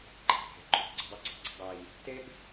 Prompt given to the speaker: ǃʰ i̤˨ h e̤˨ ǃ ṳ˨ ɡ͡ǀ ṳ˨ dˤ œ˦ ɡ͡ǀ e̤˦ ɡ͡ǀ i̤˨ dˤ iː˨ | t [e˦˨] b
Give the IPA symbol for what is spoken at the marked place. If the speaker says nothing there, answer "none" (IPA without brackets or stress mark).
e˦